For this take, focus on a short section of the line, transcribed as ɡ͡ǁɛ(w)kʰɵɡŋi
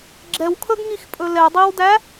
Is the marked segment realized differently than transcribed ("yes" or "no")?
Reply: no